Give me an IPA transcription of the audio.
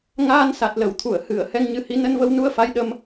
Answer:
ŋ aː˧ n s a˨˩ t̚ l ə˧˩ w t̪ʰ u˧˩ ə̯ h ɨ˧˩ ə̯ h ɛ˧ ŋ ɲ ɨ˨˦ h i˨˦ n ə˧ n v ə˧ w n u˧ ə̯ f a˨˦ j ɗ ə˧ m

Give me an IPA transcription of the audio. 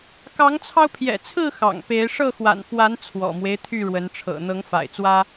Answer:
k ɑ˨˦ ŋ t͡sʰ ɑ˧ ʊ̯ pʰ j ɛ̰˨˩ t͡sʰ ɹ̩˥˨ x ɑ̰˨˩ ŋ p e˨˦ ɪ̯ ʂ ɤ˥˨ x w a̰˨˩ n f w a˨˦ n t͡sʰ w ɔ̰˨˩ m w e˦ ɪ̯ t̪ʰ y˥˨ ɻ w ə˨˦ n ʈ͡ʂʰ ɤ̰˨˩ n̪ ɤ˨˦ ŋ f a̰˨˩ ɪ̯ t͡s w ä˦

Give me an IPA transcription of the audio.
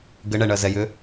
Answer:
ɡ ɘ ɳ ɛ ɳ ɜ z ɛ j ʏ

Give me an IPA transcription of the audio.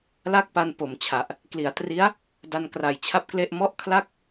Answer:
l a˥˩ k̚ p a˧ n p o˨˩ m t͡ɕʰ a˨˩ ʔ | k l i˩˦ a̯ t r i˦˥ a̯ | d a˧ n k r a˨˩ j t͡ɕʰ a˥˩ p̚ k l e˥˩ ʔ m ɔ˥˩ ʔ kʰ l a˥˩ k̚

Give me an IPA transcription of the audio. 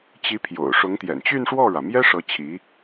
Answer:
t͡ɕ i˧˥ pʰ j o̰˨˩ ʊ̯ ʂ ʊ˧˥ ŋ t̪ j ɛ̰˨˩ n t͡ɕ y˥˧ n ʂ w ɔ˥˩ ɻ ä˩ m j ɛ˥ ʂ ɤ˧˥ t͡ɕʰ i˧˥

